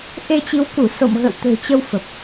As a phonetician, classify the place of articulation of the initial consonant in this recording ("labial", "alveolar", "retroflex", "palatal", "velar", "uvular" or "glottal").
glottal